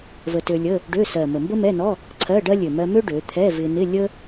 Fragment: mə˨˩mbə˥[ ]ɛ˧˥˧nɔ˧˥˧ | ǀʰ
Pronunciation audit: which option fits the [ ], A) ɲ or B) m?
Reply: B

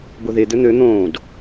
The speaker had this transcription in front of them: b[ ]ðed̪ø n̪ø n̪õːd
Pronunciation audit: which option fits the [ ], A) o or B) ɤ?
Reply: A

